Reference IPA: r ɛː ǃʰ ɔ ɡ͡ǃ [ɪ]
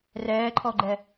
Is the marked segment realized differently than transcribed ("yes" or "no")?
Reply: yes